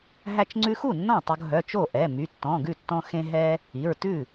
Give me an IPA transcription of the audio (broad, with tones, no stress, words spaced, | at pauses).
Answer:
ɦæ˧t͡ʃŋ͡ǀʉ˧xu˥˩ nːɔ̃˥˩tˤo˧ɡɦœ˩˧˩ t͡ʃo˥˩ʔɛ˩˧˩ my˩˧˩tːɔ̃˩˧˩ɡʉ˥˩tːɔ̃˧ xẽ˧ ɦɛ˧ | i˩˧˩ɹtʉ˥˩